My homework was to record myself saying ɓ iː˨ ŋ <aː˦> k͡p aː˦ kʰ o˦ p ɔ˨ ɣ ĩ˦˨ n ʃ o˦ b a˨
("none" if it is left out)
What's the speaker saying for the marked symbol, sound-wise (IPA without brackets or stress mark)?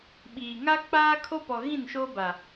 a˦